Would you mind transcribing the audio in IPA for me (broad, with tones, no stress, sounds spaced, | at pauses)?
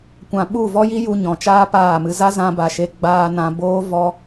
kʷ ã˨ ɓ u˦˨ v ɔ˦ j i˦ j u˧ ɲ ɔ̃˨ t͡ʃ aː˦ p aː˦˨ m ɨ˧ z a˦ z ã˧ b a˨ ʃ e˧ ɡ͡b aː˧ n ã˧ b oː˦ v ɔ˦